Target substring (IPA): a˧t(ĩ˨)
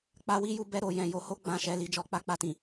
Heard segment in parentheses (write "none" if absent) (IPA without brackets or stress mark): ĩ˨